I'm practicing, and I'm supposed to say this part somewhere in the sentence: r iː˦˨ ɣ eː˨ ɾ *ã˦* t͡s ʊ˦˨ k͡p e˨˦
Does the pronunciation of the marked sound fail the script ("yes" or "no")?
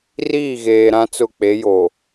no